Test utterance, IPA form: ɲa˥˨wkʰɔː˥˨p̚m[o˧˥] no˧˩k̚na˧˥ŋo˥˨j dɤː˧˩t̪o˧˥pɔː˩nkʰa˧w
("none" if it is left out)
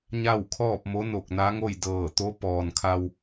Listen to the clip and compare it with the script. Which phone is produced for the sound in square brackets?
o˧˥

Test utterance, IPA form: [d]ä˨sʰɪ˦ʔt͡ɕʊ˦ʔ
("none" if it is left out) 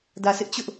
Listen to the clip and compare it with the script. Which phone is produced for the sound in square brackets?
d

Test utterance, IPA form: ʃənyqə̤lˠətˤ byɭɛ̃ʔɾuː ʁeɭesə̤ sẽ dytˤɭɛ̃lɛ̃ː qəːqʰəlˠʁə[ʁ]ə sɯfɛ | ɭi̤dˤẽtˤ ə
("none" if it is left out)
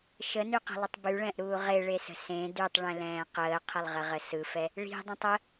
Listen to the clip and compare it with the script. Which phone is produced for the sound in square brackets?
ʁ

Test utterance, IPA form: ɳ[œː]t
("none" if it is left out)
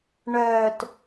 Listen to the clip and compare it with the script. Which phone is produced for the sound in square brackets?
œː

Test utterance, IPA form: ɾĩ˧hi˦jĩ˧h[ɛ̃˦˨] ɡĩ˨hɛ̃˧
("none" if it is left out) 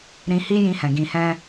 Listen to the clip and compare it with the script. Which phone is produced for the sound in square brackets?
ɛ̃˨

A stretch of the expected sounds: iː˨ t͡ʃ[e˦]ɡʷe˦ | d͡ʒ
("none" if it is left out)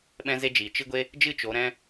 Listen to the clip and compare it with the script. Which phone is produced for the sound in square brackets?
ɨ˦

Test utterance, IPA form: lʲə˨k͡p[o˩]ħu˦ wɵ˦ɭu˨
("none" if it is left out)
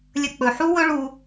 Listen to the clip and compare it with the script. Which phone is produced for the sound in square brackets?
ɵ˩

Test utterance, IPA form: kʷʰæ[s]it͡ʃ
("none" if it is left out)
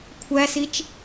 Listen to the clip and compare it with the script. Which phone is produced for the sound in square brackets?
s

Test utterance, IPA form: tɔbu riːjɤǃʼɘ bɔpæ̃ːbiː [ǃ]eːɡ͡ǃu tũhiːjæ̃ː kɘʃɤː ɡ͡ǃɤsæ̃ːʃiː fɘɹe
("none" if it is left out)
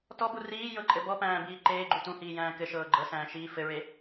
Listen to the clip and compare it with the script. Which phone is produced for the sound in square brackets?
ǃ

